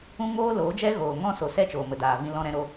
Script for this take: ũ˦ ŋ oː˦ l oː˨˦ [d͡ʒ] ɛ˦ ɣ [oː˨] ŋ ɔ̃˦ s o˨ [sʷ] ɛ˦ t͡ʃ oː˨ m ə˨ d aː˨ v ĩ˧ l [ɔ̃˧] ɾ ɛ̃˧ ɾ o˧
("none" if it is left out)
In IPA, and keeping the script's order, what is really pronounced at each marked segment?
d͡ʒ, oː˨, s, ɔ̃˧

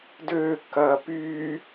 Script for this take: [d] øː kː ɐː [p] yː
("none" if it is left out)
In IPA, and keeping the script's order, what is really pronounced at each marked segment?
d, p

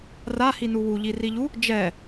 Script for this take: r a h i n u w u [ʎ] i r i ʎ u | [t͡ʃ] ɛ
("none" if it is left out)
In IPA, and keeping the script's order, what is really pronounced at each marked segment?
ʎ, d͡ʒ

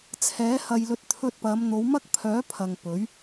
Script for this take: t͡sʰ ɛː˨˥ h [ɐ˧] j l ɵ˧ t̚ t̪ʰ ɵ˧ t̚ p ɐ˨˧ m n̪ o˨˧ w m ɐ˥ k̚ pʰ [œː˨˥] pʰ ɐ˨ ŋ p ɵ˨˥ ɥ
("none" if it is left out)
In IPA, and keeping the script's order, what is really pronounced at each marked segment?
ɐ˧, œː˨˥

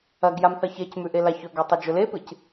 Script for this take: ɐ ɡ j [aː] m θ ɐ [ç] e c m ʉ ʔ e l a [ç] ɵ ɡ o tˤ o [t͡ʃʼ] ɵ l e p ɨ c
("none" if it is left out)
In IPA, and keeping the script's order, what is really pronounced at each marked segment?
a, ç, ç, d͡ʒ

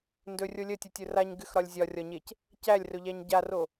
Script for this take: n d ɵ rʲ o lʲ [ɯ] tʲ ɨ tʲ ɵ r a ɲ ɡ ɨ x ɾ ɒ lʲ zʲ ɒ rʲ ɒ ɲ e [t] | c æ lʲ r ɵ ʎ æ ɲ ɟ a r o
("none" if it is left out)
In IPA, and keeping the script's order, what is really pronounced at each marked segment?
ə, c

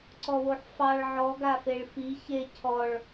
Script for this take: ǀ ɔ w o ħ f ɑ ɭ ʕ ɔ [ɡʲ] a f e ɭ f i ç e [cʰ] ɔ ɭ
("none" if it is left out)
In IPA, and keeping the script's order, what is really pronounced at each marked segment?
ɡ, cʰ

